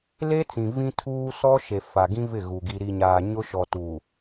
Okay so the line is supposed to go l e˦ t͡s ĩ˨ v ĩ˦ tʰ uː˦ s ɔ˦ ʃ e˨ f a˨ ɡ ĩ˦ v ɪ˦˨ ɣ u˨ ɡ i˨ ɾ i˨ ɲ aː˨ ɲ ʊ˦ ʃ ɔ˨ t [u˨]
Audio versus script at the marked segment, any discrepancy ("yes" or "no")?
no